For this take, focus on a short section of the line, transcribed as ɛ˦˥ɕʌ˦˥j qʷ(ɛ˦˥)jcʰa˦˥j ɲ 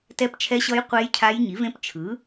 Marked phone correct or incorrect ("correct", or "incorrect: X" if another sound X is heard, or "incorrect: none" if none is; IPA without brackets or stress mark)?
incorrect: e˦˥